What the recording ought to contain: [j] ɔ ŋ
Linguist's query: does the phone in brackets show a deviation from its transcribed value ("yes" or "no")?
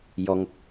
no